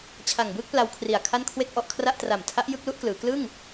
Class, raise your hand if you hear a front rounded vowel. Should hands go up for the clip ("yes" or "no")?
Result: no